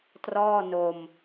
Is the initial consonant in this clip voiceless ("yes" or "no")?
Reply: yes